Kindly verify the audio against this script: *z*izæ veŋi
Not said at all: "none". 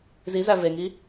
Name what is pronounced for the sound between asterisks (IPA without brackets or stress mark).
z